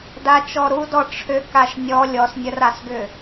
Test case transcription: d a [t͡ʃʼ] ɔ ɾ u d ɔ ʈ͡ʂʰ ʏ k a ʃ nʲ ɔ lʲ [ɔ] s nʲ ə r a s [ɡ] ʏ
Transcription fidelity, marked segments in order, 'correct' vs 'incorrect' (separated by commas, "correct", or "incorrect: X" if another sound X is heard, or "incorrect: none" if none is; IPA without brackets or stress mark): incorrect: t͡ʃ, correct, correct